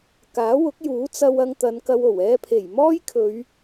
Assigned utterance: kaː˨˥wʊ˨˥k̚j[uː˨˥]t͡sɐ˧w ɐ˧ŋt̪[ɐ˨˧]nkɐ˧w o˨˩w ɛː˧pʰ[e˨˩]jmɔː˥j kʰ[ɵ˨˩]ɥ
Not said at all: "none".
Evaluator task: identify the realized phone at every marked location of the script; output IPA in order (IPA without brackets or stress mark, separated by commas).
uː˨˥, ɐ˨˧, e˨˩, ɵ˨˧